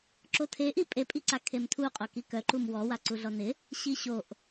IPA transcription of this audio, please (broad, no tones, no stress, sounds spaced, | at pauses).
ǁ o tʰ e ʔ i pʼ e pʼ i ǀ a kʰ e m tʰ u qʼ o k i k œ ǃ u m w ɔ w a ǀ u ɮ ɔ n ɪ | ɕ i ɕ o ʔ